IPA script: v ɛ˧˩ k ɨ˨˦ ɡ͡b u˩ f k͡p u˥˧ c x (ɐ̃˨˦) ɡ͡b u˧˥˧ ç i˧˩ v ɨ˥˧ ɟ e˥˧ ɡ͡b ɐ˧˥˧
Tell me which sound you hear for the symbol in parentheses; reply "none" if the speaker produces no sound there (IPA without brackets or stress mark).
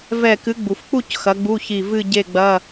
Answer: ɐ˨˦